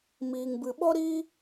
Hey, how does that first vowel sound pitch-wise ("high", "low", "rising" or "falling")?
low